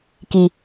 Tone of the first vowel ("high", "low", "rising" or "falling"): low